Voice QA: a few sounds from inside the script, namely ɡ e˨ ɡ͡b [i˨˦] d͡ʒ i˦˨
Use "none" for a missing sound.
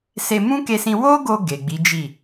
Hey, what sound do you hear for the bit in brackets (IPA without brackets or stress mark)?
i˨˦